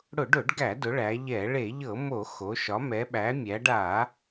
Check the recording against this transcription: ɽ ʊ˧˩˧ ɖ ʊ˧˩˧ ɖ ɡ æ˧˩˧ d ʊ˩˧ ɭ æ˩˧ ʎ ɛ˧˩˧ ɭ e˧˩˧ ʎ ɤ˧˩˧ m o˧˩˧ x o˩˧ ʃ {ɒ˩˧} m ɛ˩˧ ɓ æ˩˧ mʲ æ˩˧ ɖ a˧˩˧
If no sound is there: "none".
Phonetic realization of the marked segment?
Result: ɒ˩˧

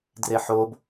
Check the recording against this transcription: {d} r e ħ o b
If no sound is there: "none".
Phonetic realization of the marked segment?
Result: d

